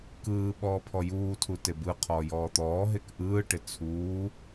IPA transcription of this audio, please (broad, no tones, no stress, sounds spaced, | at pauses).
k ɯː ɓ ɔː pʰ ɔ j uː tʰ u t e b ɯ qʰ ɔː j ɔː t̪ ɔː ɦ e k ʔ ɯː ʈ ɪ t͡sʰ uː